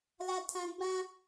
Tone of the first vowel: high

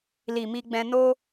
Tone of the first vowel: low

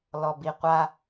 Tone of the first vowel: low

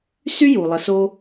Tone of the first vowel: high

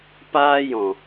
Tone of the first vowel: high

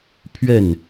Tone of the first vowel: falling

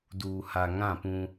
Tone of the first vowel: low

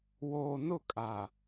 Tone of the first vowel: low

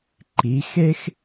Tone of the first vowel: rising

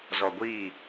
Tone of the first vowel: low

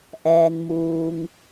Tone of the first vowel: low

